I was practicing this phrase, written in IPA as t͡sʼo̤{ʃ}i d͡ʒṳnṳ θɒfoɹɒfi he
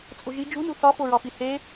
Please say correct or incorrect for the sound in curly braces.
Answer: incorrect